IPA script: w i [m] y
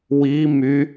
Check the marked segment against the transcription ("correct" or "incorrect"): correct